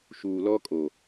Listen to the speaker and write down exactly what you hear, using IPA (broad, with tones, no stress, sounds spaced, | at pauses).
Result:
ʃ uː˨ l ɔ˦ kʼ o˨